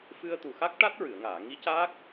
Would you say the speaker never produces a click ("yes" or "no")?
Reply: yes